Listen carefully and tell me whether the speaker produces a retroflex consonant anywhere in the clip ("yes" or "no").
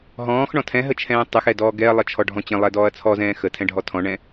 yes